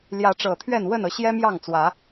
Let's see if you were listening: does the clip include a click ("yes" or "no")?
no